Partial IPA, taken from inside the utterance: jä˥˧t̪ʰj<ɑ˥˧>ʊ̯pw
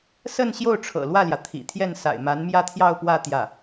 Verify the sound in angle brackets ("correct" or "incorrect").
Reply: correct